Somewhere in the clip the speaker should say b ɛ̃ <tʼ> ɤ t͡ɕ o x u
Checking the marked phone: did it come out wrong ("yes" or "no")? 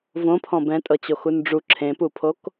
no